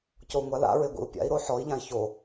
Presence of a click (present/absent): absent